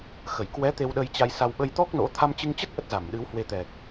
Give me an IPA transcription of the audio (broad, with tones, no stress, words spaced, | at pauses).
xə˧˩jkwɛ˨˦ t̪e˧w ɗə˧jt͡ɕa˧jsa˧w ɓə˧jt̪ɔ˦˥k̚ no̰˧˥ t̪ʰa˧mt͡ɕɨ˧ŋt͡ɕə˦˥t̚ ʔə˦˥t̚za˧˩m ɗɨ˨˦whwe˧t̪ɛ˨˩k̚